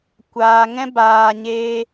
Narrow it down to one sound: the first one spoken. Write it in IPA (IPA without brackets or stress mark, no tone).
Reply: kʷ